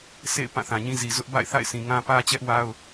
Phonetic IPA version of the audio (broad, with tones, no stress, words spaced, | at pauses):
sʰḛ˦˨ɪ̯ pã˦˨θã˨ɲĩ˦zi˨ zʊ˦ʔba̰˦˨ɪ̯θa̰˦˨ɪ̯ sʰĩ˨ŋã˦ pä˦t͡ɕɛ˦ʔwa˦ʊ̯